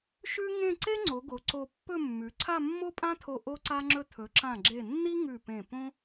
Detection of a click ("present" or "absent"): present